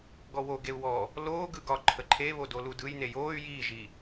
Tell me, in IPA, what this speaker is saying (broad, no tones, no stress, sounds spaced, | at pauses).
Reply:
ɡ ɔ w o ɡ e u̯ w ɔ | l oː ɡ ɯ ɡ ɒ ǃʰ ə ǃʰ e β o d o l u d ɯ j n e j oː y̯ j iː ʒ i